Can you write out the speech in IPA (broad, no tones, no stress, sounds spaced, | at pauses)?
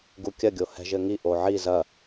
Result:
ɡ u kʲ ɐ ɡʲ o h ɛ̤ ʒ ɘ ŋ i ʔ o ʕ i z ɐ